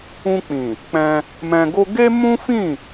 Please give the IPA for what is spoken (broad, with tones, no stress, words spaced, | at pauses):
ũ˧k͡pĩ˨ | k͡pɛ̃˧ | mɛ̃˧ɡo˦ ɡe˦mũ˦fĩ˦˨